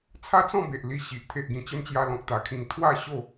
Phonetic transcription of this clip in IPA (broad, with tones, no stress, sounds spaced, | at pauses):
t͡sʰ a˦ t͡s ɔ̃˥˧ b e˨ ʔ l i˧ ɕ i˨ ʔ t̪ʰ e˨ ʔ ɡ ĩ˨˩ t͡ɕ ə˧ m t͡ɕ j a˧ l ɔ̃˨ k̚ t̪ a˨˩ kʰ ĩ˨˩ ŋ t̪ʰ w a˥˧ ɕ o˥˧